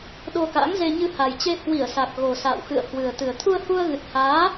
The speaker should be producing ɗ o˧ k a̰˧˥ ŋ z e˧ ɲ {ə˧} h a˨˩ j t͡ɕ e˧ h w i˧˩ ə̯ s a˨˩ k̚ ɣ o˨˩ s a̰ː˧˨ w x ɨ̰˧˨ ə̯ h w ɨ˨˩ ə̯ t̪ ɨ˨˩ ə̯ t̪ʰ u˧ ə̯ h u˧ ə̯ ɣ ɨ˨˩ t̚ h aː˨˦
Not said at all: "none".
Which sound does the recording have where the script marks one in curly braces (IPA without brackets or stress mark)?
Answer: ɨ˧